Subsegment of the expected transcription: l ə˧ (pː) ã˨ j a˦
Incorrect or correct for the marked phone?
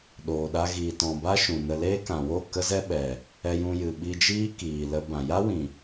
incorrect: b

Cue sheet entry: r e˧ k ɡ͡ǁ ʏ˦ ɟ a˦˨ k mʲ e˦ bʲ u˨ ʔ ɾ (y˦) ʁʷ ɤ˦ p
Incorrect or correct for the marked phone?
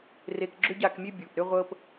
incorrect: ʏ˦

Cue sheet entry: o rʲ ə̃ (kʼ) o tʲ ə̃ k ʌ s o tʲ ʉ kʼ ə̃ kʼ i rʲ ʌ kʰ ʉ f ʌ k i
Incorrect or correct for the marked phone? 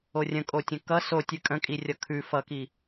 correct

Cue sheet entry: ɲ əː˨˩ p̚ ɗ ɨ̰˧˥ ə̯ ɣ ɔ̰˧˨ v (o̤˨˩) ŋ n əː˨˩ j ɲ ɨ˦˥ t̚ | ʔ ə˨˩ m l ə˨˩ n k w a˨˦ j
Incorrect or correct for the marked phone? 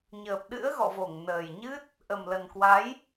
incorrect: o˧˩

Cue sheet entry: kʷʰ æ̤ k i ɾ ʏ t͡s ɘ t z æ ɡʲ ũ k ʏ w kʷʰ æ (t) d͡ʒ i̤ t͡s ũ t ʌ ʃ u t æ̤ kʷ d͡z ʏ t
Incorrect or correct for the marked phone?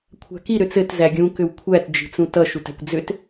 correct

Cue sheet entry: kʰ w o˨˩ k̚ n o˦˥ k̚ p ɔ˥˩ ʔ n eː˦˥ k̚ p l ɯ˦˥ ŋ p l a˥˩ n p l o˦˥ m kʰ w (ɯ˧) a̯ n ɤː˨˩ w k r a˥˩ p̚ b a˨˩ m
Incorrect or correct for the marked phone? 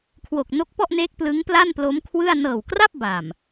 incorrect: ɯ˥˩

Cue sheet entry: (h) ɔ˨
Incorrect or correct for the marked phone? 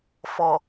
incorrect: f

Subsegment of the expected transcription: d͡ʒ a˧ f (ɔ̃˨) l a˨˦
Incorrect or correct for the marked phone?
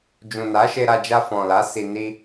correct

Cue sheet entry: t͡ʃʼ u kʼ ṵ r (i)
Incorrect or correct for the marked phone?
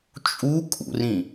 incorrect: ĩ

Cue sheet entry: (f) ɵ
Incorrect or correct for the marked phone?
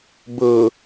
incorrect: b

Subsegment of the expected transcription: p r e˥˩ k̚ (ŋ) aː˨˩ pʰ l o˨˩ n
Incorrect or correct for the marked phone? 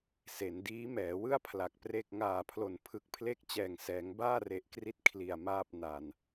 correct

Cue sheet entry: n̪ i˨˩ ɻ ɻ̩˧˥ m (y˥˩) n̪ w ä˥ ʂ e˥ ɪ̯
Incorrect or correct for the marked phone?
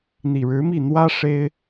incorrect: i˥˩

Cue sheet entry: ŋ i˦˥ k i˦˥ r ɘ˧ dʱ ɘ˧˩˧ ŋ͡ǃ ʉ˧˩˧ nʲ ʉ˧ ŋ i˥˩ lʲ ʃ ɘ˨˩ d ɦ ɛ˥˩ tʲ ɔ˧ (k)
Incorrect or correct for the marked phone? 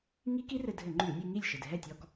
correct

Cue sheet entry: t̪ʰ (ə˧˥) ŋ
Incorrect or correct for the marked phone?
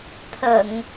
incorrect: ə˨˩˨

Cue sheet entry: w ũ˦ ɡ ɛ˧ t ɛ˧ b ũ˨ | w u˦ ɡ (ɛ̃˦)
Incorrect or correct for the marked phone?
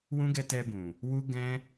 correct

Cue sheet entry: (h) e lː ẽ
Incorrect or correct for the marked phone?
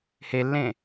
correct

